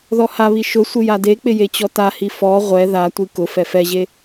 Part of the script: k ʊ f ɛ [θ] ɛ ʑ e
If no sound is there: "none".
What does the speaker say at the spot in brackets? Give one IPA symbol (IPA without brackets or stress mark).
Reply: f